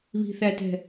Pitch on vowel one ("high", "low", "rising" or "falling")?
low